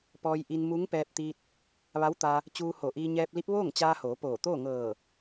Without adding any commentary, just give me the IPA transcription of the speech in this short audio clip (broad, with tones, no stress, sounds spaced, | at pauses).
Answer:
p ɔː˧ j ʔ i˧ n m u˧˥ ŋ p ɛː˧ p̚ t̪ i˧ t̚ | ʋ a˧˥ w t̪ a˧ | t͡ɕ uː˧ h o˧˩ ʔ iː˧ ɲ ɛː˧ p̚ l i˧˥ p̚ ʋ oː˥˨ ŋ t͡ɕ aː˧ h oː˩˧ p oː˧˩ t̪ oː˥˨ ŋ ɤː˧˩